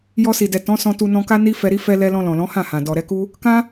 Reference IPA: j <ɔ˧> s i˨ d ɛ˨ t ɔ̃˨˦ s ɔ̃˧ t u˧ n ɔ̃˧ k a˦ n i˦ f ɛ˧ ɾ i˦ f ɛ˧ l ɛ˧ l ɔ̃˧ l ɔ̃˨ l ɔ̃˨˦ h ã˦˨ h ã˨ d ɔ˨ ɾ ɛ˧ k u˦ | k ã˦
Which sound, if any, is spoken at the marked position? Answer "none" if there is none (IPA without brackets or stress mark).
ɔ˧